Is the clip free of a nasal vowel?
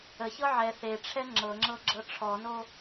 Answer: yes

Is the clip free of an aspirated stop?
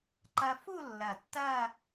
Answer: yes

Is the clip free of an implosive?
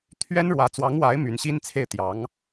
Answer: yes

